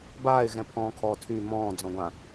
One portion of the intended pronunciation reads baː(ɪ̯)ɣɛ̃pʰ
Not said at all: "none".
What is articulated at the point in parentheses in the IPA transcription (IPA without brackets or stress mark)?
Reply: ɪ̯